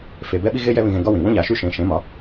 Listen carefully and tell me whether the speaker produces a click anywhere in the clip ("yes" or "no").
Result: no